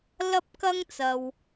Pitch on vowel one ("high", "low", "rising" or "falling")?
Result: high